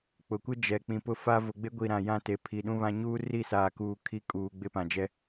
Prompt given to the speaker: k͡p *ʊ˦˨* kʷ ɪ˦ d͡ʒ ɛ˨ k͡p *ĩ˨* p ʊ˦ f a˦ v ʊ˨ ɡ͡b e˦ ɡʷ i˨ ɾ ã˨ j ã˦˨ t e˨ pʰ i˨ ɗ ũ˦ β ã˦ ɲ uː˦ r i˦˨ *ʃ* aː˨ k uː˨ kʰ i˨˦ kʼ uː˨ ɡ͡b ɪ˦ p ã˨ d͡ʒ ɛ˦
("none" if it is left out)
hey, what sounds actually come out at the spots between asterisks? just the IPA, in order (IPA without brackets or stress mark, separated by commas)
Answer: ʊ˨, ĩ˨, s